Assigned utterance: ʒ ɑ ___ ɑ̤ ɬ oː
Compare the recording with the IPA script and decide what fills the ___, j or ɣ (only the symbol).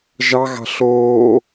ɣ